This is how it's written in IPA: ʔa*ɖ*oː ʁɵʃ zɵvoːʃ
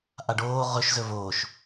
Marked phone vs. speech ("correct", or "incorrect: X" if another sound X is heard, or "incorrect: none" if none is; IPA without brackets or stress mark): correct